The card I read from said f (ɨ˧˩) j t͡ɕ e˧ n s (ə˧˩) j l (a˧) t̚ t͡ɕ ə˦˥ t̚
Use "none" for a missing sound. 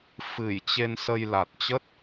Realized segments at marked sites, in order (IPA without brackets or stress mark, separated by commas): ɨ˧˩, ə˧, a˨˩